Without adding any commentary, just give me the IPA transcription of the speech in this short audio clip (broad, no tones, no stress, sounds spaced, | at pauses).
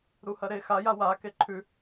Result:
ɾ u h ɐ ɾ e x a j a w a k e ǃʰ ʉ